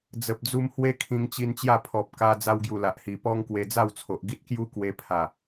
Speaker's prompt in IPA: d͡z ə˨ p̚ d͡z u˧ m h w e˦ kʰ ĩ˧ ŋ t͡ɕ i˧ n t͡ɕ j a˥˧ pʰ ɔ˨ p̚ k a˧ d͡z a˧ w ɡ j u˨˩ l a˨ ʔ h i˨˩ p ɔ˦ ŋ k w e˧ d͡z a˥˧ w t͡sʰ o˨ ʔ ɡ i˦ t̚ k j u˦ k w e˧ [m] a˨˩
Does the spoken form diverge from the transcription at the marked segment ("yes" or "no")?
yes